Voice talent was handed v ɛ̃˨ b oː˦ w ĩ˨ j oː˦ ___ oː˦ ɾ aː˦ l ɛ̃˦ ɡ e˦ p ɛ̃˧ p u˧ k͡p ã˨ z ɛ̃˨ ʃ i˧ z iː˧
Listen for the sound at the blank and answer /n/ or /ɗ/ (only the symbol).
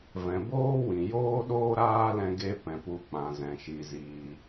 ɗ